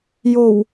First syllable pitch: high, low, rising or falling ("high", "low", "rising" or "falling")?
low